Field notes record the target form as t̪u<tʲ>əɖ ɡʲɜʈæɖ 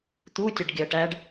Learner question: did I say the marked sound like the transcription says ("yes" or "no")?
yes